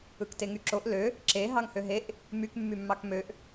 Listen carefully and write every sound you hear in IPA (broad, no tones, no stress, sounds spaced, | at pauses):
ɯ k t e ŋ y ǁ o ʔ l ø | ǁ e ɦ ɑ ŋ h ø ɦ e ʔ | m y k mː y mː ɑ k m ø ʔ